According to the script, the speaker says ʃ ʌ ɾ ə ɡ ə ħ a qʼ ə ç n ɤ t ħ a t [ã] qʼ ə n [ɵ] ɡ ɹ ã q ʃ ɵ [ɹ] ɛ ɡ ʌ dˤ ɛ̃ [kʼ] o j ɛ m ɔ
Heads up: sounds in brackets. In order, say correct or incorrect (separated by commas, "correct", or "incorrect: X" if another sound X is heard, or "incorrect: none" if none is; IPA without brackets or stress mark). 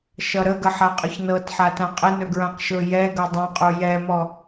correct, correct, incorrect: j, incorrect: qʼ